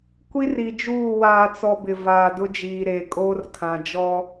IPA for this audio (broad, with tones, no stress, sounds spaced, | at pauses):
kʷ i˦ r i˨ d͡ʒ uː˦˨ w aː˨ t͡s ɔ˨ b ɪ˨ v aː˨ d ʊ˦ d͡ʒ iː˨ ɾ eː˨ kʼ oː˦ r kʰ ã˨ d͡ʒ ɔ˦